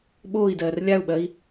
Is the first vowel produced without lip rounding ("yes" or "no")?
no